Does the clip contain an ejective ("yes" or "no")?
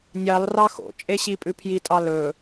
yes